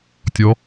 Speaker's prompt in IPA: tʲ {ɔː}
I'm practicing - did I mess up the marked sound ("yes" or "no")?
yes